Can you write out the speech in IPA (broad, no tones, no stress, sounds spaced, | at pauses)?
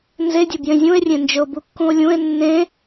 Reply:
n z e dʲ ə b j ẽ zʲ ũ e̯ rʲ ẽ n d͡ʒ ɵ o̯ b u kː ũ o̯ lʲ ũ e̯ nː ẽ